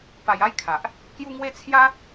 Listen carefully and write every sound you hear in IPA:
p a˧ j a˦ j kʰ a˨ ʔ | k j u˦ ŋ w e˦ t͡sʰ j a˦

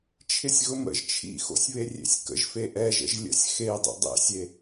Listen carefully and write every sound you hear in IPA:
t͡ʃʰ ɪ sʲ ɣ ʊ m ə̰ ʒ t͡ʃʰ ḭ x o̰ sʲ β e rʲ ḛ sʲ k ə̰ ʒ f e ʔ ɛ ʒ ə̰ ʒ lʲ ə̰ sʲ x e dˤ ḭ dˤ ḛ sʲ e

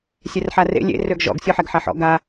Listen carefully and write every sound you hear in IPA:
sʲ ɛ r ħ a r ḛ lʲ ḛ r ø ɡ ʒ ɔ̰ ɡ sʲ ɔ ħ ɛ ɡ ħ a ħ ɔ̰ ɡ a

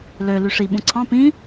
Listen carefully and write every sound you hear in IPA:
l ø l y ʂ i ɓ ũ ǀʰ ɑ̃ p ĩ

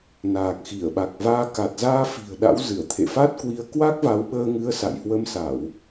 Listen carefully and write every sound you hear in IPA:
n aː˨˩ k̚ x i˧˩ ə̯ ɓ a˨˩ k̚ v aː˧ k a˨˩ t̚ z aː˧ f i̤˨˩ ə̯ ɗ a̰˧˥ w z ɨ˧˩ ə̯ t̪ʰ ḛ˧˨ f a˦˥ t̚ k w i˧ ə̯ k w a˦˥ k̚ v a˨˦ w ɓ əː˧ ŋ ɨ˨˦ ə̯ s a̰˧˨ j h w ə˧ m s a˧˩˨ w

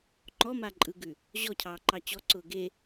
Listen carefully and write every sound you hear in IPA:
ŋ͡ǃ ɔ m a ǃʼ ɯ ɡ ʉ | ʑ ɔ cʰ ɑː ǃ ɑ t͡ɕ ɔ ǀ ʊː ɡ e

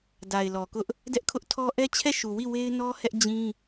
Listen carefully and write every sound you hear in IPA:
d a˨ ɪ̯ l ɔ˨ k ʊ˦ ʔ | d ɛ˦ ʔ kʰ ʊ˦ ʔ tʰ ɔ˦ ʔ ɛ˦ t͡ɕʰ ɛ˦˨ ʃ u˨ w i˦˨ w e˦ ɪ̯ n ɔ˦ h ɛ˦ ʔ d͡ʑ ĩ˦

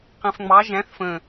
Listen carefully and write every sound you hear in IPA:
q ɛ̃ f ŋ͡m ɑ ʒ æ̃ θ f ə̃

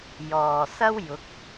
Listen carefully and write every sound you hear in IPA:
j ɔː˨ s ɐ˥ w j ʊ˨˥ k̚

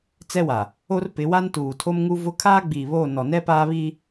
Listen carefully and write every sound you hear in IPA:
t͡s ɛ˦ w a˨ | o˦ r p ɪ˨˦ w a˦ n t uː˨ tʰ o˦ m ŋ u˦ v ʊ˦ kʰ aː˦ ɡ͡b iː˨ β o˦˨ n ɔ˨ n ɛ˦ p aː˦ β i˦

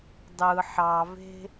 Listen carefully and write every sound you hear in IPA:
dˤ ɯ ħ ɑ v e̤

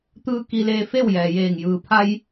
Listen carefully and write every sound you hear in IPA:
t̪ ɯː˧ k i˧ l eː˧ f e˥˨ w j ɛː˩ j eː˧˩ ŋ j ɯː˩ pʰ a˧ j

